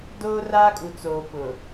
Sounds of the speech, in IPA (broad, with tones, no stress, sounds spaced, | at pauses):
d oː˦ r aː˦ kʼ u˨ t͡s oː˨ p ʊ˨